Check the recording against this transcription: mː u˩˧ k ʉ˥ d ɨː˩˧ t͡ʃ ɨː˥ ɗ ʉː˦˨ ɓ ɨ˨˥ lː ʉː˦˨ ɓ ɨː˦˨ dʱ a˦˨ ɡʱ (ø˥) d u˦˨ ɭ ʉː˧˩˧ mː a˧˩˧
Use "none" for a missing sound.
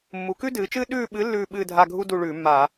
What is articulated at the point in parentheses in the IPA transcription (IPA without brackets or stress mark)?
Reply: u˥